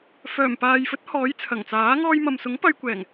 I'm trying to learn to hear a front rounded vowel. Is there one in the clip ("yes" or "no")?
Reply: yes